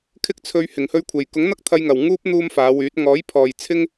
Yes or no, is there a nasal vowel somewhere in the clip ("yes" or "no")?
no